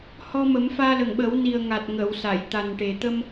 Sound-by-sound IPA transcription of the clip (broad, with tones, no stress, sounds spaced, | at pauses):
h ɔ˧ m ə˨˩˦ m f aː˧ l ə˨˩ ŋ ɓ ə˨˩˦ w n i˨˩ ə̯ ŋ a˨˩ t̚ ŋ ə˨˩˨ w s a˨˩˨ j t̪ a˨˩ n ʈ e˨˩ t̪ ə˧ m